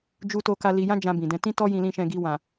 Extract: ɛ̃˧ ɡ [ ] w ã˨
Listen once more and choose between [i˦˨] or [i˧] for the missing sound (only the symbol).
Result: i˧